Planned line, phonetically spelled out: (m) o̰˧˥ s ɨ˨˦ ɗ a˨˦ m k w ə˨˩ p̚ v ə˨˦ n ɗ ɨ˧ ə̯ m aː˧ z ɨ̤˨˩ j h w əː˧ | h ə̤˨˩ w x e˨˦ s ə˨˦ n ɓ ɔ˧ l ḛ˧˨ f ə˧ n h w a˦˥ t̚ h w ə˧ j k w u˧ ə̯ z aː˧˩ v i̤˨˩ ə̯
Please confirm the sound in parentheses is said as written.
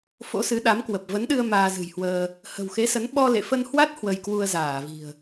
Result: no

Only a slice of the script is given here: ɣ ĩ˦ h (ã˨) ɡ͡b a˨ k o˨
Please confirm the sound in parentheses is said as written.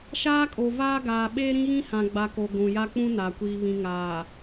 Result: yes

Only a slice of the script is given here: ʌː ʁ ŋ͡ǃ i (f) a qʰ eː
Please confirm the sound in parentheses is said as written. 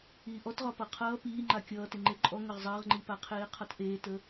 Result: no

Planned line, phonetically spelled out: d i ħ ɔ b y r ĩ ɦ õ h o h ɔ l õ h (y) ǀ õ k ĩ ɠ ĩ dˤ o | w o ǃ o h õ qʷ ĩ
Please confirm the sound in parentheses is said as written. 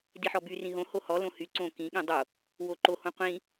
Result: yes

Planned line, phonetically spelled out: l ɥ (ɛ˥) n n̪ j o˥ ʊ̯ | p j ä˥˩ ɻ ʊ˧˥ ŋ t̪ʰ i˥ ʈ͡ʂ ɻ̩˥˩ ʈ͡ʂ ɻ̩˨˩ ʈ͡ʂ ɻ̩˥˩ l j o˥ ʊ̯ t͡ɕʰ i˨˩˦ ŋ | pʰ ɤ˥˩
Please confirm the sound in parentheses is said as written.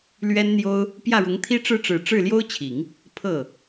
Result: yes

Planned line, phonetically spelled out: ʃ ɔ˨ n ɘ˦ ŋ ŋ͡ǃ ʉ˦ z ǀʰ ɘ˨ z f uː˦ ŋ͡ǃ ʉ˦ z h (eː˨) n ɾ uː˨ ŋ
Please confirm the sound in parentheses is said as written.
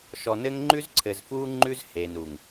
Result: yes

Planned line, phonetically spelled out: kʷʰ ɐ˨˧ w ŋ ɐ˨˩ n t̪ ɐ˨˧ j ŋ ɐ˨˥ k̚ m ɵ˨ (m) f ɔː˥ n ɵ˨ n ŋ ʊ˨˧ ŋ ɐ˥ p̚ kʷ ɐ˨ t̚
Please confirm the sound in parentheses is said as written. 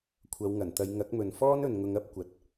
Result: no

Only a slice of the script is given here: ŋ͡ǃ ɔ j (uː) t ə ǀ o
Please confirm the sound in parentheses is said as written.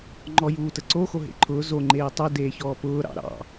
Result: yes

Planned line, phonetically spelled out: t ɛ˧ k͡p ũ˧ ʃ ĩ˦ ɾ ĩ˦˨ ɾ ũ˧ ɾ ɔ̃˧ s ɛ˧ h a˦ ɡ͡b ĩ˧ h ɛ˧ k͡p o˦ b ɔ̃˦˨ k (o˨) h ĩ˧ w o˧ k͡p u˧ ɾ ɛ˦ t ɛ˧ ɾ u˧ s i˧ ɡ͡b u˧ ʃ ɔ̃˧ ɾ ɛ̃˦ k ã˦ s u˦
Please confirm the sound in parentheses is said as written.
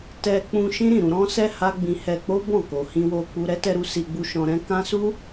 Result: yes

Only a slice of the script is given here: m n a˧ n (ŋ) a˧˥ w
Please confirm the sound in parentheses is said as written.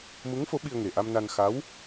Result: no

